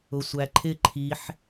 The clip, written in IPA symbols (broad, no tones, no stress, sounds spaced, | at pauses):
ʊ sʷ æ ǃʰ ɪ ǃʰ i ħ